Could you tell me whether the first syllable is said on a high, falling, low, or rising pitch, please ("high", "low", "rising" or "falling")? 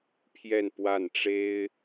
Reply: falling